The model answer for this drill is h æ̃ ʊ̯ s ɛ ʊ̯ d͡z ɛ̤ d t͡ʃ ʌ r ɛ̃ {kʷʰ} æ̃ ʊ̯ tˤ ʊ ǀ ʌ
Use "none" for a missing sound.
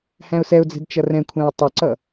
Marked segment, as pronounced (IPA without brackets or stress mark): kʷʰ